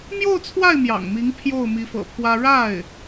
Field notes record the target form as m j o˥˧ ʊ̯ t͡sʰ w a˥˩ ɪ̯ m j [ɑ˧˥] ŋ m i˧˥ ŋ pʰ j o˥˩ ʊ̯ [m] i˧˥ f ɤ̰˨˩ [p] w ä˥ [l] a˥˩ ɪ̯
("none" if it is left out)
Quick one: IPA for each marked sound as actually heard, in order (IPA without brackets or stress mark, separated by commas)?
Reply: ɑ̰˨˩, m, pʰ, ɻ